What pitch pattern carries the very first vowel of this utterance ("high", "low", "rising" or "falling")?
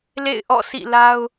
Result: falling